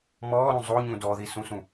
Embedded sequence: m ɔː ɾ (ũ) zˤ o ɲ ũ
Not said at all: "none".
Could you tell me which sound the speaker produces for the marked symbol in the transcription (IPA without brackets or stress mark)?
ũ